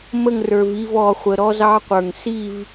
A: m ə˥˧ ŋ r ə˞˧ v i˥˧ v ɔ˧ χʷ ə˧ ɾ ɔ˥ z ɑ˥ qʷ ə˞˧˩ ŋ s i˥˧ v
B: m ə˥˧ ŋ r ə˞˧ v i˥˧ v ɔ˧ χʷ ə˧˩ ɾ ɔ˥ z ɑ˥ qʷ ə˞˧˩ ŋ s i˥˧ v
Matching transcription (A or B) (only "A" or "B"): A